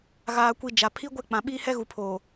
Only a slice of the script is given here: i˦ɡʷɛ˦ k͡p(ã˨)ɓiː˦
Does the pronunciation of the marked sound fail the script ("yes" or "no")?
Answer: no